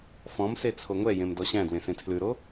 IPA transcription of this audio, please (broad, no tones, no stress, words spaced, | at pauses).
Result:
fɔ̃mse t͡sʰoŋʷɛjẽm dɔɕæ̃dwẽ sẽtʰlʉɾo